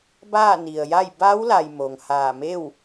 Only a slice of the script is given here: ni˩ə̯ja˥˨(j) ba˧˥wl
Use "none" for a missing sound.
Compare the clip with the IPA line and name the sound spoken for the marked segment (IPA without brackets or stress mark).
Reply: j